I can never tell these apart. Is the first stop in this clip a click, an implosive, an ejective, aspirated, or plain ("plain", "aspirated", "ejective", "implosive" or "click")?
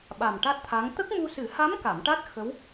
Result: implosive